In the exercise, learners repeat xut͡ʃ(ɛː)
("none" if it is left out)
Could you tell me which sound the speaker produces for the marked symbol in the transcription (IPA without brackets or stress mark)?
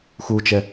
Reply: ɛ